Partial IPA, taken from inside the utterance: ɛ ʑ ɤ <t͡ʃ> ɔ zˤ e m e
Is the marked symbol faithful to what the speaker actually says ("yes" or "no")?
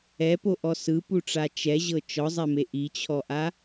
yes